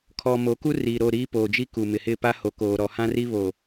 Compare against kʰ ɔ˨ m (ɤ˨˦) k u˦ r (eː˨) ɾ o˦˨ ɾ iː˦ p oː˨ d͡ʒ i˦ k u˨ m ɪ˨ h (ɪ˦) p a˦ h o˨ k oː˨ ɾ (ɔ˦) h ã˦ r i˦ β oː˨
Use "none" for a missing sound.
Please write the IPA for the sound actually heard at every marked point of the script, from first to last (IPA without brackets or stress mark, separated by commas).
o˨˦, iː˨, ɪ˦˨, ɔ˨